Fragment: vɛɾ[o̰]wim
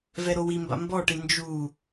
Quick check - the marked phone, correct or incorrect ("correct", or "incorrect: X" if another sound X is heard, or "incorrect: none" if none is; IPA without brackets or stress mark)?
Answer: incorrect: o